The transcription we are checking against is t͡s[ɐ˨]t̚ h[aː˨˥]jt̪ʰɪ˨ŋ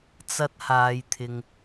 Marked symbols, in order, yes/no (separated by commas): yes, no